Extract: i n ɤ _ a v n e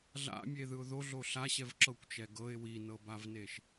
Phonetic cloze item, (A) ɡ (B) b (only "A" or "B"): B